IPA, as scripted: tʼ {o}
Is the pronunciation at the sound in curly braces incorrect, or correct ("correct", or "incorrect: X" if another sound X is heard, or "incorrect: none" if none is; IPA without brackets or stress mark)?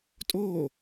correct